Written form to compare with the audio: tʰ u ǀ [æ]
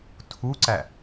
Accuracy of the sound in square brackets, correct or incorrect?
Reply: correct